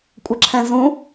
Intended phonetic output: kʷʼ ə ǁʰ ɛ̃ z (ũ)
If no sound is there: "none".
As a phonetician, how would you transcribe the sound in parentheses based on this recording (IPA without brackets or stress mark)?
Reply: ũ